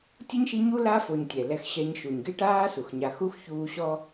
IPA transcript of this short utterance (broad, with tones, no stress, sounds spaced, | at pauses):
tʲ o˥ ɲ ʃ i˦ ɲ u˥ l a˥ f o˨ ɲ tʲ ɛ˩ l ɛ˦ x ɕ ɛ˦ ɲ ʃ u˩ ɲ ɡ e˥ ʈ aː˥ s u˩ x ɲ a˨ x u˥ x ç uː˦ ɕ ɔ˦